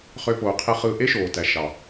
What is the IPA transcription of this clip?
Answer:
χ ø˦ p oː˧ qʰ i˦ χ ɯː˧ ʔ e˦ ʃ oː˨ t æ˨ ʃ ɑ˨

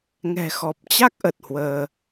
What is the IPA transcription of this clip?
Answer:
ŋ ɛ̤˨˩ x ɔ˨˩ p̚ t͡ɕ a˦˥ k̚ ʔ ə˨˩ t̚ h w əː˧

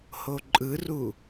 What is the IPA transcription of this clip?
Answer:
h o ǃʼ ɯ r u

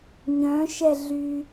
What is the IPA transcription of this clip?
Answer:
ɲ œ̃ ʃ ɛ ɮ y

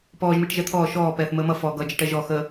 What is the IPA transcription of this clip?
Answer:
p ɔː ʒ m i ʈ ʒ ɛ t̪ʰ ɔː ʃ ɔː p ɛː θ m əː m ʌ f ɔ ɡ ʌ d͡ʒ ʌ ʈ ɛ ʒ ɔ x ə

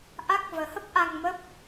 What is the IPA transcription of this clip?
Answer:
ʔ a˦˥ k̚ v əː˨˦ h ə˦˥ p̚ ʔ a˧ ŋ m ə˦˥ p̚

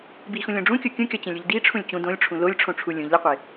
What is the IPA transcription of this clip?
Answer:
b i x ũ lʲ õ ɖ͡ʐ ũ kʲ o kʲ ũ kʲ ɒ t͡ɕ ẽ lʲ u ʎ d i ʈ͡ʂʰ ũ lʲ t͡ɕ ũ d õ lʲ ʈ͡ʂʰ ũ l o lʲ ʈ͡ʂʰ õ ʈ͡ʂʰ u lʲ ũ ʎ l i qʷ e

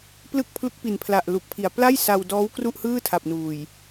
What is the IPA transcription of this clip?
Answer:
p l ɯ˥˩ k̚ pʰ l u˦˥ k̚ p i˨˩ n pʰ l a˨˩ ʔ l u˨˩ k̚ pʰ i˨˩ a̯ p l a˥˩ j s a˧ w d ɔː˦˥ w k r u˥˩ ʔ h ɯː˥˩ tʰ a˨˩ p̚ n uː˨˩ j

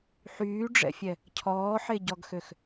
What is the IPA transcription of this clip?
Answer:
ħ yː ɖ͡ʐ ɛ̰ fʲ ɛ | cʰ ɔː ħ e ɟ ɔ ɡ x ø x

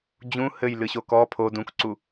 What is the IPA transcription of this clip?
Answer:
d͡ʑ ũ h ɘ j l ɨ ɕ o k ɔ pʰ o d ũ k ǀ u

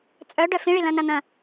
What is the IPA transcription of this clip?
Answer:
t͡sʼ œ ɖ œ f ĩ ɭ i l ɐ̃ n ɐ n̪ ɐ̃

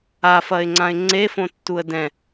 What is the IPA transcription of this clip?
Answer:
a f ɐ ɪ̯ ŋ͡ǀ ã ɪ̯ ŋ͡ǀ e f õ tː u ə̯ d ɛ̃

